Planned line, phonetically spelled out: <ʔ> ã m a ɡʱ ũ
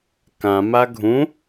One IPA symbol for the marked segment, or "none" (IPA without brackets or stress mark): k